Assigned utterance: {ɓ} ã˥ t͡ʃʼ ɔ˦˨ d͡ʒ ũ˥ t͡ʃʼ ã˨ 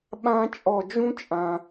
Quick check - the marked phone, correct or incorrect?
correct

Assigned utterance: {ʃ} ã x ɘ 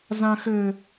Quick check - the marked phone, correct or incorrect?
incorrect: z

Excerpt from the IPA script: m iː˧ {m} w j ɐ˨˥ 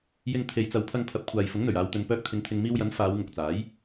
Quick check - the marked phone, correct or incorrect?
incorrect: none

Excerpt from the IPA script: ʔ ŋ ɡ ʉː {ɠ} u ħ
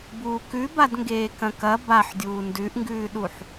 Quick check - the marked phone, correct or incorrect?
incorrect: ɗ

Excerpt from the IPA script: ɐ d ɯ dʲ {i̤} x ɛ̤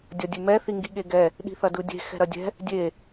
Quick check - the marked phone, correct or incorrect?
incorrect: e̤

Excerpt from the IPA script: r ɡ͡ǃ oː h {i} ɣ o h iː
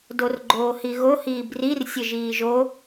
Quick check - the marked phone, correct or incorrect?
correct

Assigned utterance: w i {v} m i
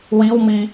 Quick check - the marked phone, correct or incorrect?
incorrect: w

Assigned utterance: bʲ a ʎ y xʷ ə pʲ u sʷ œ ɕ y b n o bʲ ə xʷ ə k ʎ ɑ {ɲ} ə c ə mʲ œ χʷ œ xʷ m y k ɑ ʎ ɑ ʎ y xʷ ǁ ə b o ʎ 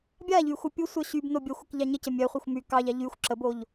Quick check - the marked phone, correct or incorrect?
correct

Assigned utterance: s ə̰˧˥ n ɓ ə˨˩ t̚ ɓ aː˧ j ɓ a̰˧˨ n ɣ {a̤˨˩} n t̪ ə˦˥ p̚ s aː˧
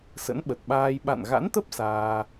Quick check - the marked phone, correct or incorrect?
incorrect: a̰˧˥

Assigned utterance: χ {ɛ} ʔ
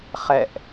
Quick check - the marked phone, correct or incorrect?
correct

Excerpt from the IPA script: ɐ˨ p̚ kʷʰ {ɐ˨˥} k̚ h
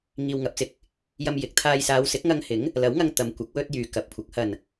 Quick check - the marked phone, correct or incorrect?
correct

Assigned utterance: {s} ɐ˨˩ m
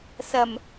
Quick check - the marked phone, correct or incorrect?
correct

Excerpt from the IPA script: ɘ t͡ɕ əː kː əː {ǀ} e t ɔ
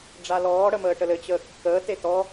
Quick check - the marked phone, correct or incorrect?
incorrect: t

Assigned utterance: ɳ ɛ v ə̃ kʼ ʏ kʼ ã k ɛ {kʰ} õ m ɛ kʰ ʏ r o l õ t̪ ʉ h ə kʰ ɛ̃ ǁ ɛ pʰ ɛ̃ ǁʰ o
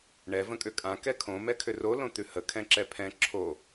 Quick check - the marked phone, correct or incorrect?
correct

